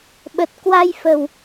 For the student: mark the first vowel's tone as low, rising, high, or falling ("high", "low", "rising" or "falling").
low